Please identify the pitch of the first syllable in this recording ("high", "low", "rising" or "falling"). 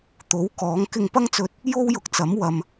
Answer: rising